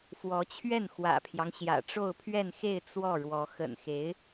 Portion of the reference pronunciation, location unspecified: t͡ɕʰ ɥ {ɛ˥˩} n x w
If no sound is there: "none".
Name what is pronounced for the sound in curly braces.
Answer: ɛ˥˩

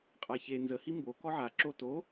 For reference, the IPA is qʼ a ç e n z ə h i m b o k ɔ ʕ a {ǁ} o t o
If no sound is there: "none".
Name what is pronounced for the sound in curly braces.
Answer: ǁ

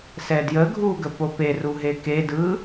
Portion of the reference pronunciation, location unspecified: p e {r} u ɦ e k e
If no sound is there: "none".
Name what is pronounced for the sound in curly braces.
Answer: r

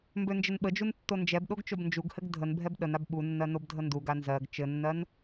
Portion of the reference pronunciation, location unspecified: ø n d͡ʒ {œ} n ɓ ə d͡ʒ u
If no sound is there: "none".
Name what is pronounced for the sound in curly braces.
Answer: ə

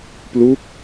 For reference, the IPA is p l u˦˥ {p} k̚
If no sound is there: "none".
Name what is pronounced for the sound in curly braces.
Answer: none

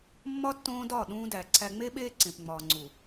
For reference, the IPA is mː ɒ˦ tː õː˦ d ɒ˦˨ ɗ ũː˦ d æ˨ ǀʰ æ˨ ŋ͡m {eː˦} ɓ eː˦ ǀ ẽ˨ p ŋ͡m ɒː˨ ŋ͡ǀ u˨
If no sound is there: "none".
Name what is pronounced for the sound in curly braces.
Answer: e˦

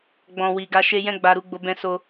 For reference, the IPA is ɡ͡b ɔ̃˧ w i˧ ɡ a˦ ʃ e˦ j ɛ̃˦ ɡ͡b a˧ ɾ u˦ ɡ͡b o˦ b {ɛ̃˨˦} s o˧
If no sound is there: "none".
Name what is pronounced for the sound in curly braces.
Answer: ɛ̃˧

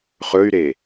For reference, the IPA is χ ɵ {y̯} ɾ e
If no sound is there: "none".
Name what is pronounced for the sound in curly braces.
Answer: y̯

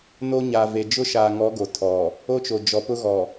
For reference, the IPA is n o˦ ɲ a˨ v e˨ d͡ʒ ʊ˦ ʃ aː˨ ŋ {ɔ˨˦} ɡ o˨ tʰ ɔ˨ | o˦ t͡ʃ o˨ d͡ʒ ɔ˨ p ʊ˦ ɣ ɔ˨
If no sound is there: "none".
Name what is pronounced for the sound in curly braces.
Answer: ɔ˨˦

